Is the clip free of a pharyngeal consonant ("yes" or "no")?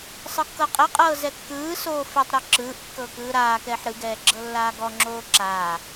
no